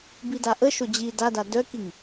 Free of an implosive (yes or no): yes